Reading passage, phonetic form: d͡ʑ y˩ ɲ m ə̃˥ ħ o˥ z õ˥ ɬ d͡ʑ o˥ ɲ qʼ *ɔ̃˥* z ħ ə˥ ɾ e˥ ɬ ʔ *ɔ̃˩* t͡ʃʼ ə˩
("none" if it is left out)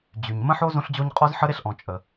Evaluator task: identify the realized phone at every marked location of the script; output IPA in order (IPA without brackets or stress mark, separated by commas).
ɔ˥, ɔ̃˩